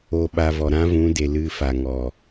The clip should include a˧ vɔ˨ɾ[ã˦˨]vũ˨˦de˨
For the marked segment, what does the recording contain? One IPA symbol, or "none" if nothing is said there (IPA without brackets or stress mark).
ã˦